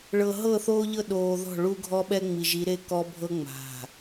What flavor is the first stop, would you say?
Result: implosive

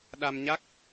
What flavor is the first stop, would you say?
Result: implosive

